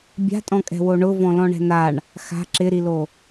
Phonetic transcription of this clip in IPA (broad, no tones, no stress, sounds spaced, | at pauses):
bʲ a̤ tʼ ɔ̃ kʼ ɛ̤ w o ɳ ʊ v ɔ̃ l ɔ̃ ɳ ɛ̤ n a ɳ | x a̤ ǁ ɪ ɾ i l o